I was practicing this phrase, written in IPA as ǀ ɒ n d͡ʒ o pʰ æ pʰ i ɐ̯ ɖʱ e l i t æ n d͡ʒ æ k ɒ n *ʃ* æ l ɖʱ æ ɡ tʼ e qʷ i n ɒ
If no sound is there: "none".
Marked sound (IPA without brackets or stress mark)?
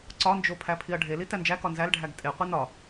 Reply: z